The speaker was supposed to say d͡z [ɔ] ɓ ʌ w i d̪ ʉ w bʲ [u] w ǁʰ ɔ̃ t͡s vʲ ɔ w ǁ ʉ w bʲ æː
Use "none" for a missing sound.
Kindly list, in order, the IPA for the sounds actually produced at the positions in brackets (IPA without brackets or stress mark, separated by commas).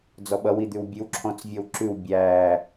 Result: ɔ, ʉ